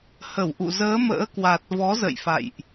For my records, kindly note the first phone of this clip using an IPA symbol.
h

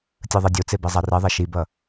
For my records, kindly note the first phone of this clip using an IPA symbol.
tʲ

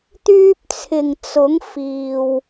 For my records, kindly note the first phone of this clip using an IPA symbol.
t̪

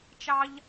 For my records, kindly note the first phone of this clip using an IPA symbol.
t͡ʃ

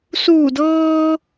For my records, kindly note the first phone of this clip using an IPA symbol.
s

